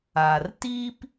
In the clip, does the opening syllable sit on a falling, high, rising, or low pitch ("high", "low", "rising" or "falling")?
low